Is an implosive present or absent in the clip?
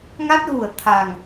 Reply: absent